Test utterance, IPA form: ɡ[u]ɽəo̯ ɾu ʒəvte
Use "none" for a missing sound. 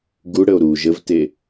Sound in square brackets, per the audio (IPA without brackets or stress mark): u